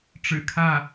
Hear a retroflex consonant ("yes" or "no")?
yes